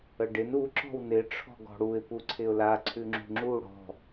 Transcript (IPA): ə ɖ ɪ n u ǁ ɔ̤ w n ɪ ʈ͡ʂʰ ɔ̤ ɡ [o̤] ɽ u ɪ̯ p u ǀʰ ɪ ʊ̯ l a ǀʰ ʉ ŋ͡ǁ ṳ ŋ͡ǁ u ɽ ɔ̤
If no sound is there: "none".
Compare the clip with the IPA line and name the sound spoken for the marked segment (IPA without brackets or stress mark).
ɔ̤